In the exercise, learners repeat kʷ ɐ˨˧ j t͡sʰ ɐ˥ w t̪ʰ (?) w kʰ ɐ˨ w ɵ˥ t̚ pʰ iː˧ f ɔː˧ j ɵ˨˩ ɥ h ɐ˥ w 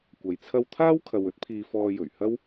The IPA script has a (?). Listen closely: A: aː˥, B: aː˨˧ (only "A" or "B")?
A